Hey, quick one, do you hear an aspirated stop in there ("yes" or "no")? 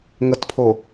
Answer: yes